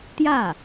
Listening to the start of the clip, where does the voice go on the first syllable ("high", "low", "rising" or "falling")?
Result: falling